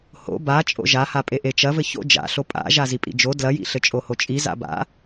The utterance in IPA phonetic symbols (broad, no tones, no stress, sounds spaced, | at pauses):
h o̰ b a t͡ʃʼ o̰ ʒ a h a pʼ e ʔ e t͡ʃ ɐ v ɘ ç o̰ d͡ʒ a̰ ɬ o pʼ a̰ ʒ a z i pʼ ḭ d͡ʒ o d l ɐ j ḭ ɬ ɘ t͡ʃʼ o h o t͡ʃʼ i z a̰ b a̰